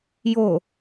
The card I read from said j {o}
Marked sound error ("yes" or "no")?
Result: no